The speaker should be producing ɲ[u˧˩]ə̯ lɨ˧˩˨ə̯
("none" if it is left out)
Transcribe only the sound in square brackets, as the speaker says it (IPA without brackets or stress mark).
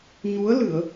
u˨˦